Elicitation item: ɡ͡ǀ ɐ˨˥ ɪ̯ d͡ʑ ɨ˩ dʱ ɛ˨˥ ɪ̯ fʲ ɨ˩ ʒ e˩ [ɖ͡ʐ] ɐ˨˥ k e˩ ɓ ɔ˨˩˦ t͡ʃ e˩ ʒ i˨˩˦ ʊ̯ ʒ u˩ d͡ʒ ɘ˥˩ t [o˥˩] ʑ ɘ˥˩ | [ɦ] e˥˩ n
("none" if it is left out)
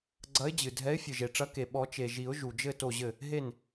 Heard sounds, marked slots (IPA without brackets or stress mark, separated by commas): ʈ͡ʂ, o˥˩, ɦ